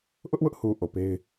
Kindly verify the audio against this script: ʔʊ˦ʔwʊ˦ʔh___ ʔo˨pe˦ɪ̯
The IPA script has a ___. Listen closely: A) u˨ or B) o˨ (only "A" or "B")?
A